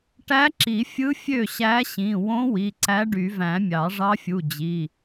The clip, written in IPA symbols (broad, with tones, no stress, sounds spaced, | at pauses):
ʈ æ˧˥ ǁ i˨˩˦ fʲ ɯ˧˥ fʲ ø˥˩ ɕ æ˧˥ ɕ ĩ˩˧˩ w õ˧˥ w i˩˧˩ ǀ æ˧˥ ɖ y˨˩˦ v æ̃˨˩˦ mʲ ɑ˨˩˦ ʐ ɑ˧˥ fʲ u˩˧˩ d͡ʑ i˩˧˩